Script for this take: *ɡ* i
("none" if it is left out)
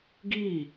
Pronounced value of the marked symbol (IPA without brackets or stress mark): ɡ